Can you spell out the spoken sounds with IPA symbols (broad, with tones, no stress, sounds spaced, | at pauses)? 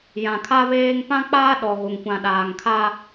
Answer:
j ã˨ kʰ a˦ β eː˦ ŋ p ã˦ k͡p aː˦ ɗ ɔ˨ ɣ o˨ ŋ kʷ ã˨ ɗ aː˨ ŋ kʰ a˦